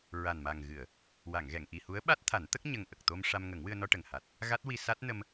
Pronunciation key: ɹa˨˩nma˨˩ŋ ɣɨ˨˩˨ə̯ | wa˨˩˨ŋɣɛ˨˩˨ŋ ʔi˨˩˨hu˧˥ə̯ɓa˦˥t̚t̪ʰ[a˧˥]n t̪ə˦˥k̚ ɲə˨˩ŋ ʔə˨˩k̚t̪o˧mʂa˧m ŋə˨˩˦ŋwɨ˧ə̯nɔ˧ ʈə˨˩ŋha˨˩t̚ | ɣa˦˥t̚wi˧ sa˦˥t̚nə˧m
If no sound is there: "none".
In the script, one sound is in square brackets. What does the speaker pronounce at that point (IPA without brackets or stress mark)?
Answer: a˨˩˦